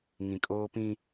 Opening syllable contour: low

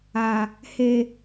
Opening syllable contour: low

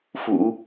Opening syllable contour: low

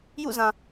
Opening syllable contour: falling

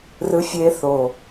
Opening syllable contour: high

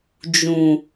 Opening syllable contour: low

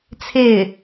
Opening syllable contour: falling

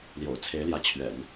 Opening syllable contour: low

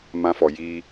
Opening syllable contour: high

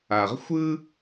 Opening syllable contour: low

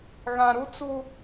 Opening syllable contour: low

